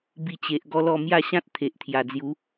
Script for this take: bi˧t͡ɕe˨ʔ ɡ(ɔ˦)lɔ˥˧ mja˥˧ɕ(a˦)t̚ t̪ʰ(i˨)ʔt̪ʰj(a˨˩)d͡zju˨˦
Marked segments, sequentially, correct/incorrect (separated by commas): correct, incorrect, incorrect, correct